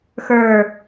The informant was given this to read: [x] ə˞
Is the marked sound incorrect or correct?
correct